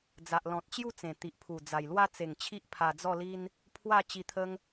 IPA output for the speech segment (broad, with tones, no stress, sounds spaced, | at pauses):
d͡z a˨ ʔ l ɔ̃˨ t̚ t͡ɕ j u˥˧ t͡s ẽ˨˩ t̪ i˨ ʔ pʰ u˨˩ d͡z a˨˩ j l w a˦ t͡s e˨˩ ŋ t͡ɕʰ i˦ ʔ pʰ a˧ d͡z ɔ˥˧ l i˦ n | pʰ w a˥˧ t͡ɕ i˧ t̪ʰ ə˦ ŋ